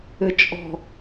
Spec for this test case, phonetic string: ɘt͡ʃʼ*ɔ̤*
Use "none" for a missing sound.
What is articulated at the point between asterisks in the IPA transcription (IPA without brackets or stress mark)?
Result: ɔ̤